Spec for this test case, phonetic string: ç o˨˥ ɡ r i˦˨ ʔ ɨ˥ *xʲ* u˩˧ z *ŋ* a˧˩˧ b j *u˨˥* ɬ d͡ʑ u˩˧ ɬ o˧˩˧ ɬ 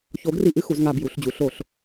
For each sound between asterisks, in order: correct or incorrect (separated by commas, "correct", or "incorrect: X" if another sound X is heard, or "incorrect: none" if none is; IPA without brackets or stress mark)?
incorrect: x, correct, incorrect: u˩˧